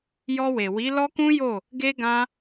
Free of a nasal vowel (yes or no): no